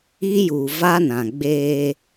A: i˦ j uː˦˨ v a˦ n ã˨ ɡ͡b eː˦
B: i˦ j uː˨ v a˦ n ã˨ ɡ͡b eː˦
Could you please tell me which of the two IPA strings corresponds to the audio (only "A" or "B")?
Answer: B